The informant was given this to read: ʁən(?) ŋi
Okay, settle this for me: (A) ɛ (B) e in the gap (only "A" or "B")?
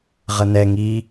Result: A